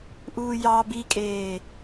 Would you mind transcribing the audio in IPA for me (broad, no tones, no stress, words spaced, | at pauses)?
ʔuːjɑ bikʼeː